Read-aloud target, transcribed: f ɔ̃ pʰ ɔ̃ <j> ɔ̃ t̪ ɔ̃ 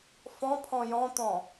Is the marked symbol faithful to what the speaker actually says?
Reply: yes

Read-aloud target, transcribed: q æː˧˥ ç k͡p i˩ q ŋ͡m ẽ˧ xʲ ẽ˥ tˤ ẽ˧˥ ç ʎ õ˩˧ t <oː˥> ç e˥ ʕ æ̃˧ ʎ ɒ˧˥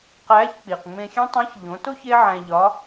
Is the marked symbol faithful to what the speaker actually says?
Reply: no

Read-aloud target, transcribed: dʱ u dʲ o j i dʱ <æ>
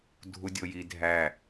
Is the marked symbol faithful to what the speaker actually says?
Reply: yes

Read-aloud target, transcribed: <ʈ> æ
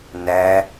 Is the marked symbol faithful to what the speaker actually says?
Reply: no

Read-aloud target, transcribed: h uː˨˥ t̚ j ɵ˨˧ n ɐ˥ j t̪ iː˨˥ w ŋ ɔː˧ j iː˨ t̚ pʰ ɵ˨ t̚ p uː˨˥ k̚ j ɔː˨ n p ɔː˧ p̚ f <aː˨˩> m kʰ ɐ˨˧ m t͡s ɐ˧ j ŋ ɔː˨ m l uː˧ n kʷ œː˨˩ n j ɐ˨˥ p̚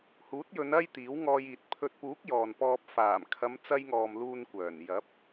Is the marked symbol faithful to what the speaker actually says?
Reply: yes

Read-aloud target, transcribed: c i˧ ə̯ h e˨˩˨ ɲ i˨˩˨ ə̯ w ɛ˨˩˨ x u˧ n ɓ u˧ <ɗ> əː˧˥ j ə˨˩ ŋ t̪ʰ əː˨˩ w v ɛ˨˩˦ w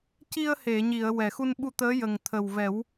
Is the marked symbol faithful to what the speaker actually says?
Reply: no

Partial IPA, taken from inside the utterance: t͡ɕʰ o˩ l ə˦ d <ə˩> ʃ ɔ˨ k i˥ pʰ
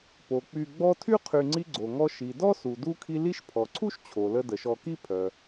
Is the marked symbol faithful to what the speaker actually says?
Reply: yes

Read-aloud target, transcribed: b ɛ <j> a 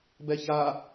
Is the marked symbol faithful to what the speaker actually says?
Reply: no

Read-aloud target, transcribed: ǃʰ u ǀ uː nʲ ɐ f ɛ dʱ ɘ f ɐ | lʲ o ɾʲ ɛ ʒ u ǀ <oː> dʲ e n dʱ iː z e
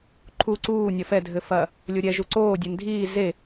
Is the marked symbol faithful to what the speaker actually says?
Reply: yes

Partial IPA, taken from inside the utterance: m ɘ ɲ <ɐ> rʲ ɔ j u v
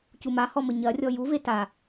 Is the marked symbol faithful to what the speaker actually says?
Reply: yes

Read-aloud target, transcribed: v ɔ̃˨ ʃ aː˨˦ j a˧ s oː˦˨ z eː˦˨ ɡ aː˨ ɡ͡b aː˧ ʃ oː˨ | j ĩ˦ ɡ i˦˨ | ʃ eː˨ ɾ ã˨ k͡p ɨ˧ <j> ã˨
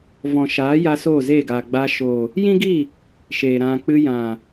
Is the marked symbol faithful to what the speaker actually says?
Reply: yes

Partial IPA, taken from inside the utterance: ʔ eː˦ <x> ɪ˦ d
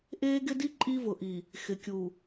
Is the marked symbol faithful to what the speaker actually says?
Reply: no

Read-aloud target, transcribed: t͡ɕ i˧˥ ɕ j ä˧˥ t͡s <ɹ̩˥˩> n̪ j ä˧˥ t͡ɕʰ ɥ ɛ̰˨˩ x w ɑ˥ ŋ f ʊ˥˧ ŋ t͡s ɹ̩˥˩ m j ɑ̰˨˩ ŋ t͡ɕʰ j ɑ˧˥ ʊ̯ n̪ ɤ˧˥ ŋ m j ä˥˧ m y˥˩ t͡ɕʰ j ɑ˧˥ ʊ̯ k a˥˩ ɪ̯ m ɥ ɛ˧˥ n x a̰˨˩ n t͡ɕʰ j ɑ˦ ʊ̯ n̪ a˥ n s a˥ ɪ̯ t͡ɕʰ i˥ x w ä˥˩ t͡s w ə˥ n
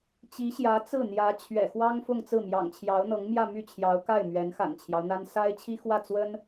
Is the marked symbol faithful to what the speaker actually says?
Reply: yes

